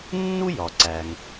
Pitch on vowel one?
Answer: high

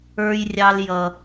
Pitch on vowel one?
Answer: high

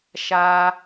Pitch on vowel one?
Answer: low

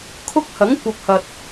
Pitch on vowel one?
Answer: high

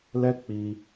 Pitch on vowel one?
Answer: high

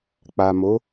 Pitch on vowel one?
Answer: low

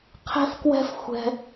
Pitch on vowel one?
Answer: high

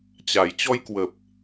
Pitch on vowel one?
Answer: low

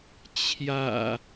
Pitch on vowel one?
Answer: low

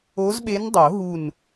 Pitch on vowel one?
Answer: rising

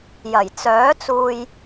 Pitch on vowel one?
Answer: low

